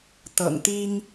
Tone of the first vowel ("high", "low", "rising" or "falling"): low